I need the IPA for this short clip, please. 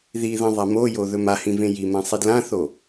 ð i ð ɐ̃ ðˤ a m o j o ð ɵ m a h ĩ v ẽ j i m ã sˤ i d l ã θ o

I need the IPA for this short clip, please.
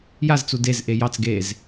j a z t͡s u d e z ʔ e j ɑ t͡s ɡ e z

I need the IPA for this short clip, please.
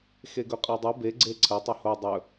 x e ɡ ɵ qʼ a dˤ ɨ b e ɡ͡ǀ e ǀʰ ɐ tˤ ɵ h o dˤ ɵ

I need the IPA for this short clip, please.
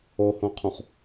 o h õ qʰ ũ χ

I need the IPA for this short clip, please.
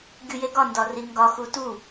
ɡʲ u j e ɡ ɒ n d ɒ r i ŋ ɡ ɒ x u t u

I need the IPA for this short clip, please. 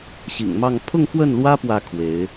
ɕ ḭ˨˩ ŋ m ɑ˥˧ ŋ pʰ ʊ˥˧ ŋ x w ə˥˩ n l w ä˥ p w ä˧˥ kʰ w e˧˥ ɪ̯

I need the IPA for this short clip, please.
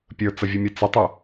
pʲ ə˞ t͡s ə vʲ ɛ mʲ ɛ t͡s ɪ tˤ ʊ

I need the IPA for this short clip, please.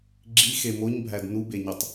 ɡ͡ǁ i x e m o ɲ bʱ æ d n u b e ɲ o tˤ

